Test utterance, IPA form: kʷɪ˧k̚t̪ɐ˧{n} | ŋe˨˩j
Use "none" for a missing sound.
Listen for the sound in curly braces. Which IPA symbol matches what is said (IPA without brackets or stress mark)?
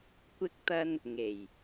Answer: n